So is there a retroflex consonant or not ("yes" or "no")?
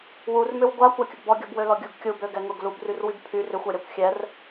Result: no